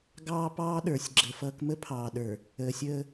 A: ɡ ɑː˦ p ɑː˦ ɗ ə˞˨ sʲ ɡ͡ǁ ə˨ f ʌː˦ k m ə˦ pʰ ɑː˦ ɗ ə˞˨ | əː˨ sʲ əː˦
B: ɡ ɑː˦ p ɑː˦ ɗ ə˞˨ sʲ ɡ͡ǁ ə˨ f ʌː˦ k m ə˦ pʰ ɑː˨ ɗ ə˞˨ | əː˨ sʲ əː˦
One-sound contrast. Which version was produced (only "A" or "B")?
B